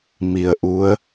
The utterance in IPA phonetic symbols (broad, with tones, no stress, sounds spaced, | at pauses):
m i˨˩ ə̯ ʔ u˨˦ ə̯